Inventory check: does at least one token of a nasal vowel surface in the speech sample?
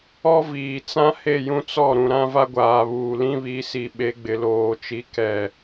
yes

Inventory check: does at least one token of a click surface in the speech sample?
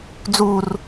no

